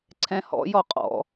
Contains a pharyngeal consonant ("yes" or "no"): no